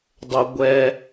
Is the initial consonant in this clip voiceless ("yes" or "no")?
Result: no